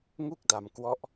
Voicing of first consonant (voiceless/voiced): voiced